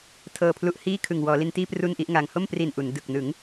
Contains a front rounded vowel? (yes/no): no